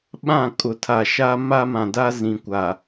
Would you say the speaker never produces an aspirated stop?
no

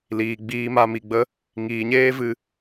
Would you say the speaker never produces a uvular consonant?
yes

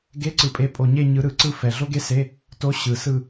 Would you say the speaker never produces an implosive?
yes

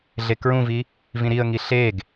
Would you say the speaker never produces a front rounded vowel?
yes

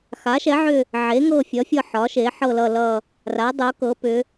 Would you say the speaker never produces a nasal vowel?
yes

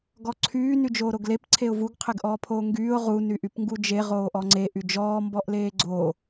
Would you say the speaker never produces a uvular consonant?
no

